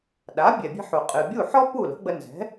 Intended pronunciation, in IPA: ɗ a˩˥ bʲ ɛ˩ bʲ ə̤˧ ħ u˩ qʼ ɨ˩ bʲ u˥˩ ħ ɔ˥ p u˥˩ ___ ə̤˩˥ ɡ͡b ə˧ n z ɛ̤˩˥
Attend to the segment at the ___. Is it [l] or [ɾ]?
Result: l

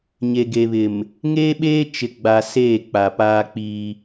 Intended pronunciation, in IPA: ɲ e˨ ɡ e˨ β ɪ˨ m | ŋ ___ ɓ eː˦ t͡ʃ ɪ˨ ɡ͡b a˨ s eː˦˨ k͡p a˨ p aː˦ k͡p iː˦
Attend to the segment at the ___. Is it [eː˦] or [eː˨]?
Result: eː˦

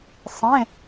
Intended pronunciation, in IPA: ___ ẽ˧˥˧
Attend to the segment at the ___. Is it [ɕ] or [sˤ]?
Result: sˤ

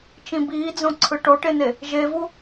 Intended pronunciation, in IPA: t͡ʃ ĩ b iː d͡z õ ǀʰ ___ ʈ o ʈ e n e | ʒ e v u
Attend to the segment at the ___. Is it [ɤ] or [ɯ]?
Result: ɯ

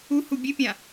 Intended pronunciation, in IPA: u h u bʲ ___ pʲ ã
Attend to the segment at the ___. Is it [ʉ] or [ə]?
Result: ʉ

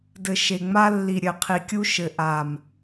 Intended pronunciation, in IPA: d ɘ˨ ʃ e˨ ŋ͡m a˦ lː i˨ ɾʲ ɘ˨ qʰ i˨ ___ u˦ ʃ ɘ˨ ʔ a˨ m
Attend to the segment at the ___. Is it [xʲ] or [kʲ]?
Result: kʲ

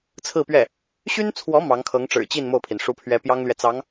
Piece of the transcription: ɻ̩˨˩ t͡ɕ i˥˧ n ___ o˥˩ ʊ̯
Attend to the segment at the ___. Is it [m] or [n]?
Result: m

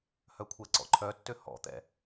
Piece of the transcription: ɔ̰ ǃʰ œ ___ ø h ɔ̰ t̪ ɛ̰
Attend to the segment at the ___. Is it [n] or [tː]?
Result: tː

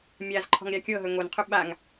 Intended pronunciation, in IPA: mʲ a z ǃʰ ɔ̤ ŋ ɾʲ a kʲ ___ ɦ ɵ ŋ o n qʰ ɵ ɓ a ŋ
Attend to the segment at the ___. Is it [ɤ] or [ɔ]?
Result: ɤ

